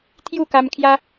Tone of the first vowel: falling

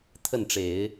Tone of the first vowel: falling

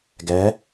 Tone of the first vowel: rising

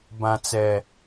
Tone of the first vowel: low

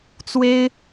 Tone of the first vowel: high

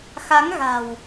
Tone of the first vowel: rising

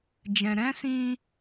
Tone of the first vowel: low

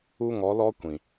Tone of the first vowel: high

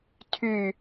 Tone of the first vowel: falling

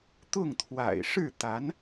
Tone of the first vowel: falling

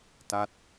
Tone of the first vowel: falling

